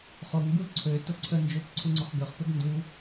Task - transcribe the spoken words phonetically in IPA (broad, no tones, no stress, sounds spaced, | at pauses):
χ o ŋ ɡ u l ǀʰ ø t o ǀʰ ə n d͡ʒ o p ǀʰ u ŋ͡ǀ o χ ɡ ø χ p ø ɡ n d u